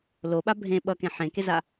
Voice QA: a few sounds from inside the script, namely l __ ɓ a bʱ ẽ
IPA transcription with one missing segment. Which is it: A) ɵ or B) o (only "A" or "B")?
B